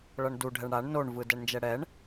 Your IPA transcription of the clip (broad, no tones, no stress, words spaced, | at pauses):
ɭʌɳdu ɖʱɛɳɽaɳ noɳvɯ dɛɳnd͡ʒɛɽɛɳ